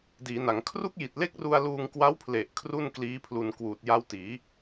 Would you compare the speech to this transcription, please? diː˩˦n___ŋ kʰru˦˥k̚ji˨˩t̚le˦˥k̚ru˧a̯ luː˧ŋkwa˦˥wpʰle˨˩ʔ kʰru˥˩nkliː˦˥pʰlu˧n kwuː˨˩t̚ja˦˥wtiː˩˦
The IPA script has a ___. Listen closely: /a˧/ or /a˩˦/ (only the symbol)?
a˩˦